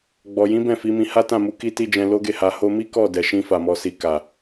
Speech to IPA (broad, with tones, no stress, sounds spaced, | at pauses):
ɡ͡b ɔ˨ j ĩ˨˦ b ɛ̃˦˨ f i˨˦ m ĩ˧ h a˦ t ã˦˨ m u˨˦ k i˧ t i˧ d͡ʒ ɛ̃˧ l o˦ ɡ e˦˨ h a˧ h o˧ m i˦ k ɔ˦˨ d ɛ˨ ʃ ĩ˧ f a˨ m ɔ˨ s i˨ k a˨